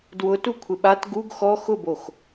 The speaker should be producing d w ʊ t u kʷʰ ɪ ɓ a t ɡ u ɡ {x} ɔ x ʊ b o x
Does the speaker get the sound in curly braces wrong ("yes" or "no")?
no